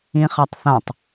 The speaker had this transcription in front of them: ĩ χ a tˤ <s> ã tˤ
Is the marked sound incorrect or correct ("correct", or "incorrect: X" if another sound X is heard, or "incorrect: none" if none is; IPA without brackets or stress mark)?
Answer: incorrect: θ